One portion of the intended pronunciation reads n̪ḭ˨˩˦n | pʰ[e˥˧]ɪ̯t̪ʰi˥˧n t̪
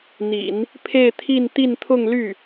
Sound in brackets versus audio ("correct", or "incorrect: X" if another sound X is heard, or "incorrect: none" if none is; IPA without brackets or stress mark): correct